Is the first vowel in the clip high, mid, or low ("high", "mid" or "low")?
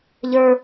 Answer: mid